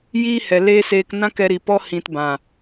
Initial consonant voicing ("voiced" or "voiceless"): voiced